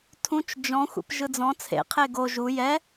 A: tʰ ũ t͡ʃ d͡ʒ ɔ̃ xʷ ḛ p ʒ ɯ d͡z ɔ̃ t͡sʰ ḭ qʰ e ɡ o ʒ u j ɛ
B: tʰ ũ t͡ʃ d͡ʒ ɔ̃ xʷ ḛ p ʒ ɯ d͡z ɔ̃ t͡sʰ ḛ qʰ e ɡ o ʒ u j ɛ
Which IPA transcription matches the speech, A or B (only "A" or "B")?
B